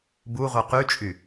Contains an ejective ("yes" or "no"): yes